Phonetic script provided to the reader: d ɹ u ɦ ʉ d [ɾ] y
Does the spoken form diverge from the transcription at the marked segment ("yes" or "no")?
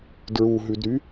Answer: no